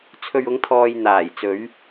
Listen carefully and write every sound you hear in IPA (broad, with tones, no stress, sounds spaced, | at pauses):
t͡sʰ ɵ˨ ɥ ʊ˨˧ ŋ t̪ʰ ɔː˨ j n̪ aː˨˩ j t͡s ɵ˨˧ ɥ